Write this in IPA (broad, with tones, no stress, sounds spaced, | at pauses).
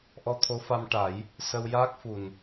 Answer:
ʔ ɔ˧ t̪ʰ o˧˥ f a˧ m ʈ a˨˩˦ j | s ə˧ w j aː˦˥ k̚ f u˨˩ n